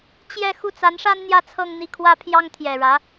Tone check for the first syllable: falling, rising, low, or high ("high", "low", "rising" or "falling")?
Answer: falling